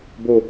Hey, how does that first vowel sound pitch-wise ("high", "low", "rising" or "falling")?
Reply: high